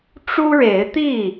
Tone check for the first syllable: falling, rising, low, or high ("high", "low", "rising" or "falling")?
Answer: high